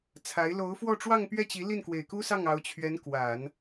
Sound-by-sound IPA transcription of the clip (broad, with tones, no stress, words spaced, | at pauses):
t͡sʰa˧˥ɪ̯ lo˧˥ʊ̯fwɔ˥˧ ʈ͡ʂwɑ˥˧ŋpɥɛ˥˩t͡ɕi˧˥ li˥˩nkwe˨˩ɪ̯ku˥sɑ˥˩ŋ ɑ˧˥ʊ̯t͡ɕʰɥɛ˧˥n kwa˨˩˦n